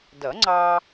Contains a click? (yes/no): yes